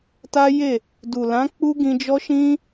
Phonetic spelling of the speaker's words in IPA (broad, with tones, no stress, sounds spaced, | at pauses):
t a˦ j e˦˨ | d u˨ l ã˨˦ k͡p u˦ ɡ ĩ˧ d͡ʒ ɔ˦ ʃ ĩ˦